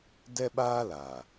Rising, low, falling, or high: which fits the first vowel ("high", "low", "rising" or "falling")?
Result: high